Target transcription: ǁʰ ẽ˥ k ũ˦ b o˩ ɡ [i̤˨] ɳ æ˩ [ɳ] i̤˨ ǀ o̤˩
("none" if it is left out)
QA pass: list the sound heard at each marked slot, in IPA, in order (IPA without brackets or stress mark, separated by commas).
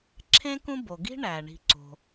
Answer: i̤˥, ɳ